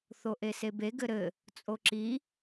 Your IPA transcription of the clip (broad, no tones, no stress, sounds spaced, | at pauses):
θ o ʔ e s e b e ɡ ɘ ɾ ɘ | t͡sʼ o ǁ i